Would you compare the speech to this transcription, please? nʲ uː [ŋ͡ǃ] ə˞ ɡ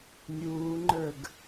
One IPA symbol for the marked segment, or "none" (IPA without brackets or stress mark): ŋ͡ǃ